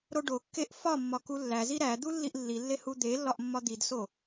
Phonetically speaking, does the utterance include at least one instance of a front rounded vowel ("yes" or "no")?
no